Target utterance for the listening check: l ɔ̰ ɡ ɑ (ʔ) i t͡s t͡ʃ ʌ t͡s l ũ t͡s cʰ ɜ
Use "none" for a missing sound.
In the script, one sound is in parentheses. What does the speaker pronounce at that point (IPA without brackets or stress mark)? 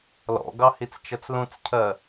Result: h